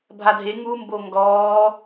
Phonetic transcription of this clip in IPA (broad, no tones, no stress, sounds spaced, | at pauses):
bʱ a dʱ e ŋ u m b o ŋ ɡ ɔː